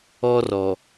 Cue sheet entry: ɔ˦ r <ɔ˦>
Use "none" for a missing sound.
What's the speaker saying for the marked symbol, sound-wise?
ɔ˨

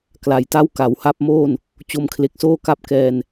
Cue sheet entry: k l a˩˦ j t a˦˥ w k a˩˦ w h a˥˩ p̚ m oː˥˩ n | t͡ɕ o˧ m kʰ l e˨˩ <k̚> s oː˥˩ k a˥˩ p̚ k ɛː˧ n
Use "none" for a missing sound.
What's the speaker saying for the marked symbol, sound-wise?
k̚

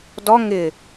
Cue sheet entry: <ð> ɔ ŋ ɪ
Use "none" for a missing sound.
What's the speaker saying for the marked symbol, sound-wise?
d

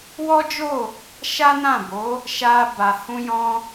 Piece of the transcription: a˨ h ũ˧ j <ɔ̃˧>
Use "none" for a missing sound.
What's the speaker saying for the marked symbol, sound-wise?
ɔ̃˧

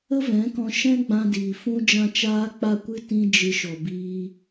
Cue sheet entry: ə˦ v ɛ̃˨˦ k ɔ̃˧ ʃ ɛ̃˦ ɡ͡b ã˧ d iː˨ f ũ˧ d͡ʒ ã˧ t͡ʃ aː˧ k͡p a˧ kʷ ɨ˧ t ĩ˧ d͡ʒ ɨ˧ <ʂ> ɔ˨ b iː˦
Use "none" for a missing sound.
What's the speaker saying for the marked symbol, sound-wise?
ʃ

